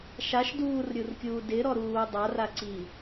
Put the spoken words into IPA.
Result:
ʃ a ʃ d uː r ɾʲ u r kʲ uː d ɪ ɾ ɔ ɾ uː dˤ a r a ǀ i

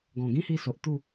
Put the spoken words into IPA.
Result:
ɡ ɔ̃˨˩ ɡ ĩ˦ h i˧ s o˨ ʔ t̪ u˥˧

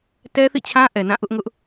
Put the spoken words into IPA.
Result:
t ɛ˦ θ ḭ˦˨ t͡ɕʰ ã˦ ʔ ɛ˨ n ã˦˨ ʔ ʊ˦ ʔ ŋ ʊ˦ ʔ

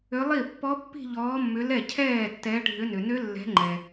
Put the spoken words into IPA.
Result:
ʏ˨˦ lˠ i˥˩ pː ɔ˦˥ pː i̤˥˧ ʎ ɔː˨˦ mː ʏ˨˦ l ɛ˥˩ cʰ ɛː˥˩ tː ɛ˨˦ ɖʱ ʏ˨˦ n ʏ˩ n ʏ˦˥ lː ɛ̤˨˦ ŋ͡ǃ ɛ˩

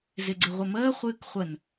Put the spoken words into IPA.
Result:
z ɪ ɡ͡ǀ ɪ ʁʷ ə m əː χʷ ɨː k χʷ ə n

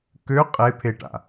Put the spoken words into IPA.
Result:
k ø qʼ e pʰ e ʈ a̰

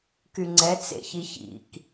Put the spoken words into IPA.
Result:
k y ŋ͡ǀ ɛ t͡s ḛ ç i ç ḭ k

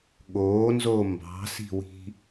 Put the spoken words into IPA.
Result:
ɠ oː n z oː m b ɑ̤ s i̤ w i̤

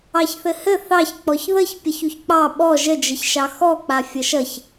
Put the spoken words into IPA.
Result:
ɑ ç θ ɘ h ɘ θ ɑ ç k͡p ɔ ç ð ə ç pʲ ʌ ç u ç k͡p ɑ ɓ ɔ ʒ ə d͡ʒ ə ç ʃ ɑ x ɔ k͡p a fʲ ʌ ʃ ʌ ç

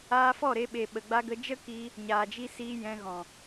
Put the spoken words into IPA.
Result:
aː˧ f ɔ˦˨ ɾ e˧ ɓ e˨ ɓ ə˨ ɡ͡b a˧ ɡ ə˧ d͡ʒ ə˦ k iː˧ | ɲ aː˨ d͡ʒ i˧ s iː˧ j ɛ̃˧ ɣ ɔ̃˨

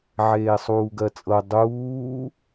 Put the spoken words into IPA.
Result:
ʕ eː sˤ uː ɡ ɜ t͡sʼ ɤ dˤ uː

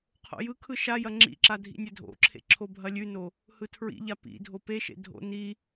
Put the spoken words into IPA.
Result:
qʰ o̰ j ɯ kʰ ɯ ʃ a j ɐ ŋ͡ǁ ḭ ǁ a dʱ ḭ nʲ ɘ dʱ o̰ ǁʰ ḛ ǁʰ o bʱ ɐ lʲ ʉ n o | h ɯ tʰ ɹ ḭ ʎ a p ḭ dʱ o p e ʃ ḛ dʱ o̰ n i

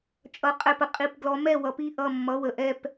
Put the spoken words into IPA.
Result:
t͡ʃʼ ʌ˩˧˩ qʼ ɛ˧˩ p ə˩ qʼ i˧˩ p ɡ l ɔ˨˦ m ɛ˥˩ w ʌ˨˦ p i˩˧˩ ʔ ʌ˧˩ mː ʌ˩˧˩ w ə˩ ʔ ɛ˧˩ p

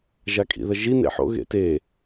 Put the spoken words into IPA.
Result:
ʒ a kʼ ḭ ð ɐ ʒ i n ḛ ħ o̰ ɣ ḛ t e

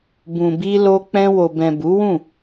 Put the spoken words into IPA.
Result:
b ũ˨ b i˧ l o˧ k͡p ɛ̃˧ w o˨ b ɛ̃˨ b u˨˦ w ũ˦˨

